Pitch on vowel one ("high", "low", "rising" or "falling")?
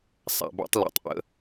low